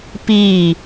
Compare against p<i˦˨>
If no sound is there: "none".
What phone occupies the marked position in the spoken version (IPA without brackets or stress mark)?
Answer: i˦˨